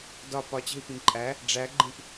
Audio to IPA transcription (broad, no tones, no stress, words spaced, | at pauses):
dɒ pɒt͡ɕe̤i̯pĩ ǃʼæ | ɖ͡ʐæɡ͡ǃĩp